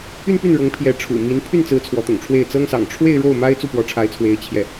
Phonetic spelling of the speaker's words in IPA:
y˥˧ n p y˥˩ n ɻ ɤ˧˥ ŋ pʰ j ɛ˧˥ ʈ͡ʂʰ ṵ˨˩ m i˧˥ n pʰ y˥˩ n t͡s ɹ̩˧˥ t͡sʰ w ɔ˧˥ t̪ ʊ̰˨˩ ŋ ʈ͡ʂʰ w e˥˩ ɪ̯ t͡s ɤ˥ ŋ s ɑ̰˨˩ ŋ ʈ͡ʂʰ w e˥˧ ɪ̯ ɻ o˥˩ ʊ̯ m a˥ ɪ̯ t͡s u˥˩ p w ɔ˧˥ ʈ͡ʂʰ a˧˥ ɪ̯ t͡sʰ w e˧˥ ɪ̯ t͡ɕʰ j ɛ˥˩

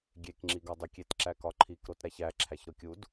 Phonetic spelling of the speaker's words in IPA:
ɡʲ e k ŋ͡ǁ i ɡ ɒ dˤ u kʲ e t ǁ æ k ɒ ǃʰ i k ɾ o t ɾ æ ç æ ǁʰ æ ç ɾ o kʲ u d

